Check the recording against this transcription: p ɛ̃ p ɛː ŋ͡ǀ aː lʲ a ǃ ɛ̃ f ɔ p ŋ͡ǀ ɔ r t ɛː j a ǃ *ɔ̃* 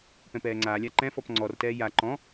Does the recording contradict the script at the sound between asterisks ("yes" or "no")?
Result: no